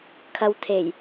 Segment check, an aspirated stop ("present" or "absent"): present